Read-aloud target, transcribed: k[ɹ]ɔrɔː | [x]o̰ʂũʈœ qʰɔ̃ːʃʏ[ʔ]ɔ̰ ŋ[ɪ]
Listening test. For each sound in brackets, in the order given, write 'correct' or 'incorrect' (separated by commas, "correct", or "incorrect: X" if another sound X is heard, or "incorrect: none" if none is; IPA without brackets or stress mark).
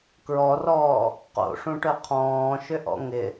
correct, incorrect: q, correct, correct